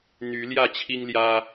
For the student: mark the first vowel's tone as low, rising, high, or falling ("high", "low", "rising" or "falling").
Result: rising